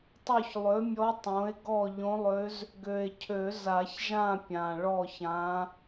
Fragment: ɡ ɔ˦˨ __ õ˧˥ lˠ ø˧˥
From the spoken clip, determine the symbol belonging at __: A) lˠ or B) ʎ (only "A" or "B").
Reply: B